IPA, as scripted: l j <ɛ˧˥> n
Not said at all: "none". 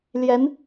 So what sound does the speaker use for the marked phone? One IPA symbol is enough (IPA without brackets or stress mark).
ɛ˧˥